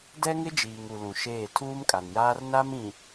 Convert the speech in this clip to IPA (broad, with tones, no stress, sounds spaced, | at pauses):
d ɛ˦ ŋ ɪ˦ d͡ʒ iː˨ ŋ u˨ l ũ˨ ʃ eː˦˨ tʰ uː˦ m kʼ a˨ n j aː˦ r n a˦ m ĩ˨